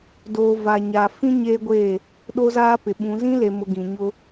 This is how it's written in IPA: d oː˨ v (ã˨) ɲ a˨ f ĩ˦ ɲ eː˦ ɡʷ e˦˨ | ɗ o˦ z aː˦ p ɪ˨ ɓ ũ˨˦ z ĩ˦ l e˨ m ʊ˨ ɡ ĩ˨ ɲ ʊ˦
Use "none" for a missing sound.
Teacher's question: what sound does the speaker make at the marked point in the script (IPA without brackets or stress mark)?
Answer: a˨